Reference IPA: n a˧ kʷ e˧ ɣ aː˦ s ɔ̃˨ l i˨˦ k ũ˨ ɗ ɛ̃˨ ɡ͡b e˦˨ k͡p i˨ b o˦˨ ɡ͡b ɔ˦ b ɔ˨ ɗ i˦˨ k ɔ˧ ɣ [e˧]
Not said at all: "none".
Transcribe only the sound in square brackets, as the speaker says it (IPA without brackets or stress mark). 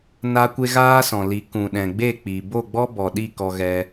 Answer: ɛ˧